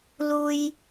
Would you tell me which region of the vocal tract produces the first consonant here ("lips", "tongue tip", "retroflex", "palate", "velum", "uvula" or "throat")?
tongue tip